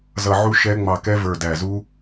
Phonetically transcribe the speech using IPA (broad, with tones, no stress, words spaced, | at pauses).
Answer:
zʌ˧˩ʕu˦˥ ʃɛ˦˥ ŋ͡mɑ˧˩kɛ˦˥ və˞˧˩dæ˧˩zu˦˥